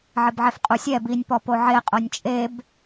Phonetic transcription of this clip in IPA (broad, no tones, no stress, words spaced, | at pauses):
ʕɪbʕɛfqʼusʲɛ binʲ pɔpoʕe qʼonʲt͡ʃʼeb